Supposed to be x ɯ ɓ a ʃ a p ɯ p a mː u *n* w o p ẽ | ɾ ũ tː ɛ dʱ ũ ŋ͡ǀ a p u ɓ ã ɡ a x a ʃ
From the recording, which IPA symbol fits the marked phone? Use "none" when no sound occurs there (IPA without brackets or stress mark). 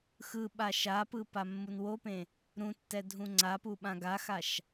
n